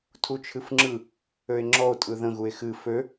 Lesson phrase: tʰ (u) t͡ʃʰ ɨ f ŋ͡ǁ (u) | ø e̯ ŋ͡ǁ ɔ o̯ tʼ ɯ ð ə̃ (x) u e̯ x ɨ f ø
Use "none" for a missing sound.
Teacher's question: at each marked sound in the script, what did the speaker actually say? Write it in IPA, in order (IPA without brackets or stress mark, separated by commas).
u, ɯ, ɣ